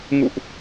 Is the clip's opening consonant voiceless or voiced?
voiced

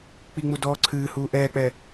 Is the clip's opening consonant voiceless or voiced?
voiceless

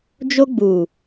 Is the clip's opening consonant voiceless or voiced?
voiced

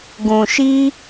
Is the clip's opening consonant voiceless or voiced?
voiced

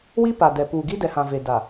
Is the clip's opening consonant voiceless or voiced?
voiced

